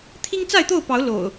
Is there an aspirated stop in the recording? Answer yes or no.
yes